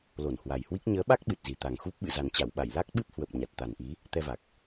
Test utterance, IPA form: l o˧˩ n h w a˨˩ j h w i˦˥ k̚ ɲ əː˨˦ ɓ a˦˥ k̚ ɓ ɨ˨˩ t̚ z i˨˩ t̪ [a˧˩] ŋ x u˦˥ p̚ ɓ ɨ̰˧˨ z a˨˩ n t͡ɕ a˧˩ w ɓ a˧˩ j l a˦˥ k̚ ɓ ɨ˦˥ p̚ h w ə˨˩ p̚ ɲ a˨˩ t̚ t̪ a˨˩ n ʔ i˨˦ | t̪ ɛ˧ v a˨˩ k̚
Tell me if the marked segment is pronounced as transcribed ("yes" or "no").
no